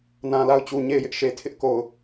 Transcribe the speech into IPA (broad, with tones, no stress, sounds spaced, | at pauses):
n ã˨ l a˦˨ ʊ̯ t͡ɕ u˨ ɲ e˦˨ ɪ̯ j ɪ˦ ʔ ʃ e˨ tʰ ɪ˦ ʔ k o˨ ʊ̯